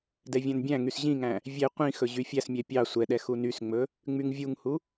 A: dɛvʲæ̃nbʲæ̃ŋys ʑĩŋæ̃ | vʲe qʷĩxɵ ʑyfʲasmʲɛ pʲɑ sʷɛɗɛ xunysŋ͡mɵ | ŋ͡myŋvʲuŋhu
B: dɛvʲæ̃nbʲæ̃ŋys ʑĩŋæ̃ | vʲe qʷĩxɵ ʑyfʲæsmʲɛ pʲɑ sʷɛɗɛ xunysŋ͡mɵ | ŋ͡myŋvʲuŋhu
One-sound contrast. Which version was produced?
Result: B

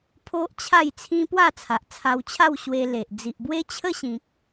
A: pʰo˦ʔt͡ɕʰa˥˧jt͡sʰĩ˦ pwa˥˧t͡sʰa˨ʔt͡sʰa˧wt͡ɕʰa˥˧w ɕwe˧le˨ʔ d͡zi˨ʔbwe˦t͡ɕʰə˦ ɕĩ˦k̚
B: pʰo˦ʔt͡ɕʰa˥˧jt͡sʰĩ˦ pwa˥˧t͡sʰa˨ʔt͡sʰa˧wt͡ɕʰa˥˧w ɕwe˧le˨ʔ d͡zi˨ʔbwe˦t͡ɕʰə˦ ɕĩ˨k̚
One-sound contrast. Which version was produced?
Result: B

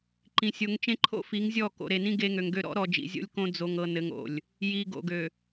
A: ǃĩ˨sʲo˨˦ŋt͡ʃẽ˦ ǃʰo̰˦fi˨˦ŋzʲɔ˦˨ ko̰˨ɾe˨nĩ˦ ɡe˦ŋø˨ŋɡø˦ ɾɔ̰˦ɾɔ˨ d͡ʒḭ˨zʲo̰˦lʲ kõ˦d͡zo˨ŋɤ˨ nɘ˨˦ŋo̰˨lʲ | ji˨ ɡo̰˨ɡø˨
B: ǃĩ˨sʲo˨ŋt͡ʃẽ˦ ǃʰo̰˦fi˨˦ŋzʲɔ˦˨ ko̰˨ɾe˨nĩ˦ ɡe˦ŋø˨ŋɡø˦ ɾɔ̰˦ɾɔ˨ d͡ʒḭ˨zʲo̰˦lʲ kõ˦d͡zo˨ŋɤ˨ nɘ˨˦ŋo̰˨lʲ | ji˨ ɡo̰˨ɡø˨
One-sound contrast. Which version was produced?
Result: A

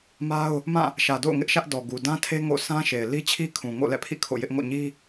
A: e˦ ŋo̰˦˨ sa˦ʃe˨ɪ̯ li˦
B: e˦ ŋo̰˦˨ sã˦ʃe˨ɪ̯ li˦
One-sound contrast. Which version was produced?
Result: B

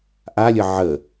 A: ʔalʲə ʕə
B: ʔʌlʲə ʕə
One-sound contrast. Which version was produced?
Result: A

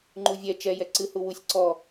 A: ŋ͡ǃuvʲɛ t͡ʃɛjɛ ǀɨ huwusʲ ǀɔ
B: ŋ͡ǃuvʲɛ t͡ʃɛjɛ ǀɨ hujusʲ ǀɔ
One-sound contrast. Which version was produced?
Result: A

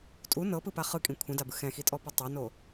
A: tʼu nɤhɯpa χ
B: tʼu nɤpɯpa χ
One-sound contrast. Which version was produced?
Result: B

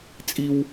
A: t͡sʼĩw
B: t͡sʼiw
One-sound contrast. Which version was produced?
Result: B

